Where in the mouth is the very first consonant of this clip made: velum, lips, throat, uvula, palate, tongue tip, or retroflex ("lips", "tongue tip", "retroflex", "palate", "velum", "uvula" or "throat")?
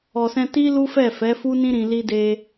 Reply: tongue tip